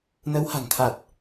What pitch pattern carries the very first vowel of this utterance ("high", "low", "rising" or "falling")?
rising